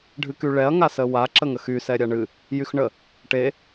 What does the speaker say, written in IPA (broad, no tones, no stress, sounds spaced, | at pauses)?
ɖʱ ɨ k y ɭ ɛ ɐ̯ ŋ a s ə w a ǁ ə ŋ ə x y s ɛ ɾʲ a ɳ ɨ | j y x ɳ ə | ʈ e